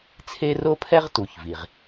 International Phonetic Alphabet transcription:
t͡sʰ e˥ r o˥ pʰ ɛ˥ ʁ t u˩ ç v i˩ ʁ

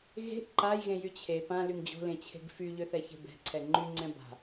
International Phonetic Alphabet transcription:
ɣ e̤ ʔ ǃ a j ɣ ẽ j y t͡ɕʰ e p ã l y ŋ d͡ʑ o̤ l ẽ t͡ɕʰ e̤ ɡ f y ʎ ø θ ɛ ç e̤ b ɛ̤ ǀʰ ɛ ŋ͡ǃ y ŋ͡ǀ ɛ̃ b a̤

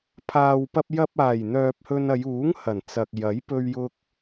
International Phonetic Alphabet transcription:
pʰ aː˨ w p ɐ˧ p̚ j ɐ˧ p̚ aː˨˩ j n̪ œː˨ p̚ h ɵ˧ n ɐ˨˧ j uː˨˥ ŋ h ɐ˨˩ n t͡s ɐ˨ k̚ j ɐ˨˥ j p ɵ˧ ɥ j ʊ˧ k̚

